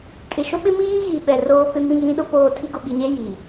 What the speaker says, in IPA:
kʼɪ˨ʃʊ˦ɓɪ˦ miː˦ɣi˨ ɓɛ˨roː˦pɪ˦mĩ˦ ɣĩ˦ɗʊ˦poː˦˨ tʰi˦ɡʊ˨ɓi˨ɲe˦ ji˨

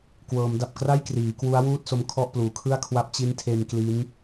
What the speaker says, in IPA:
kwɤː˩˦mda˨˩p̚kra˥˩j kriː˩˦ kwu˦˥a̯wuː˥˩t̚ so˦˥mkʰɔ˥˩ʔpluː˩˦ kʰɯ˥˩a̯kʰwa˥˩p̚ t͡ɕi˦˥ntʰe˧n kli˦˥n

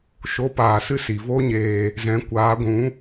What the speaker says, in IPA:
ʃo˨˦paː˨sɨ˦ si˨vo˦ɲeː˧ | zɛ̃˨˦ kʷaː˨˦ɡʷũ˨˦

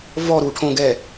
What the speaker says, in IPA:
vɔɾuʈʰõɡɛ

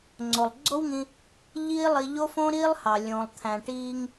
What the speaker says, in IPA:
ŋ͡ǀo˩lˠɡ͡ǀo˥wŋĩ˧ | ʎiː˥lˠi˧ ʎo˥fõ˥ɾiː˥lˠhɑ˩ lʲõ˩lˠt̪ʰæ̃˩ ʈiː˧ŋ

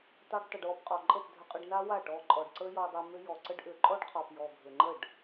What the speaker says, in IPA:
tˤa˦ɖtˤʏ˧ɖ wɔ˧pqʼɔ˨ǃʼə˦˨p dʱʏ˧qʼʏ˧ɖna˦ wa˦˨ ʈɔ˧ǃʼɔ˨ɖǀə˦ jɔ˧dˤa˧ mʏ˦ jɔ˨ǀə˦ɖʔʏ˨˦ ǃʼɔ˦ɖqʰɔ˨p jɔ˨ɡʱʏ˨ŋ͡ǃə˦˨ɖ

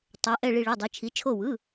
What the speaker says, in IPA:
tˤɛ˩˧ʔɛ˧˩ ɭi˧˩ɭe˩˧˩dˤɯ˩˧ t͡ʃʰi˩˧t͡ʃʰo˧˩wɯ˩˧˩

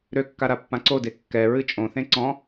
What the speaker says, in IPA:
ɾøkːa ɾapːãǀode kːɛɹɨ t͡ʃʼõθẽ ǀɔ̃

